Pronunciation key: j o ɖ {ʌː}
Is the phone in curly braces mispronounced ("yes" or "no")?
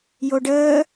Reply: yes